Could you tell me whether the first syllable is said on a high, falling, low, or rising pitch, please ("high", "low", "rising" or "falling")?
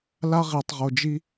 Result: high